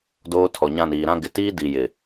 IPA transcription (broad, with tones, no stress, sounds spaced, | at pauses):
d oː˦ tʰ ɔ˨ ɲ ã˦˨ n iː˨ ɾ ã˦ ɡ ɪ˨ t iː˦ d i˨ j ɪ˨